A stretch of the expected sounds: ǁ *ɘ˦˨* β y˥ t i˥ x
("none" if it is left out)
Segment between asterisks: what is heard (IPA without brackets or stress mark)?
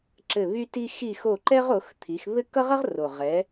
ɘ˦˨